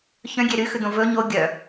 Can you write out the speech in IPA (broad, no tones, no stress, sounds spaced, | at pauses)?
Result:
ç œ̃ ɡʲ e ɾ y x ʉ d̪ õ v ɵ ɲ o ɡʲ œ